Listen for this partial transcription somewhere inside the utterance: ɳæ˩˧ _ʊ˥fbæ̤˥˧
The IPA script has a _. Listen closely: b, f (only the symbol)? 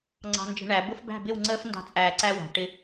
b